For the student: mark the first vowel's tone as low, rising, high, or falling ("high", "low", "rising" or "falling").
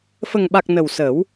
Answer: low